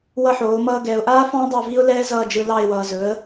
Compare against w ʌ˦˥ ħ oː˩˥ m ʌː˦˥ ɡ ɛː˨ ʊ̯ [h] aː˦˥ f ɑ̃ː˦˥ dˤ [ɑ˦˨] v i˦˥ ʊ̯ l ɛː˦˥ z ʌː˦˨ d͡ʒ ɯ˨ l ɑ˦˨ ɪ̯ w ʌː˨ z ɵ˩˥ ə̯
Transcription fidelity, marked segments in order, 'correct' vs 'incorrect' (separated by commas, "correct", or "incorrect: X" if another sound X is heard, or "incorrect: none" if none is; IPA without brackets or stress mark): incorrect: ʔ, correct